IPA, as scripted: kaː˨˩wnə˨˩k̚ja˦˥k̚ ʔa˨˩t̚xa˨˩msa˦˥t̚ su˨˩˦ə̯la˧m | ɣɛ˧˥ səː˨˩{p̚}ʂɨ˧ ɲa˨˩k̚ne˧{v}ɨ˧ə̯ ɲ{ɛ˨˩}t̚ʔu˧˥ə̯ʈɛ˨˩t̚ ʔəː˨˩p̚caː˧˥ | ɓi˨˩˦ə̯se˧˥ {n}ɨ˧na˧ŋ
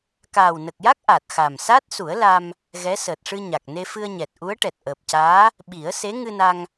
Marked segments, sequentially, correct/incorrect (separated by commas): incorrect, incorrect, correct, incorrect